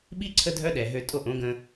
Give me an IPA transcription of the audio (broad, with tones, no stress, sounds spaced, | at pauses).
ɓ i˦ ǀʰ ə˦ dʱ œ˦ ɗ ɛ˨ ɦ ø˧ tʼ o˧ ʔ õ˨˦ ɡ ə̃˧